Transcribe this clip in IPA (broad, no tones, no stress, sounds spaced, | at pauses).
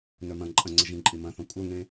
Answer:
n œ m ɐ̃ ǃʼ ɐ̃ ŋ͡ǀ ə ʒ ĩ ǃʼ i m ɐ̃ θ ɔ̃ kʷʼ œ ŋ ẽ